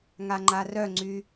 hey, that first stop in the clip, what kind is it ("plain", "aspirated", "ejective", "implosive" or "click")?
click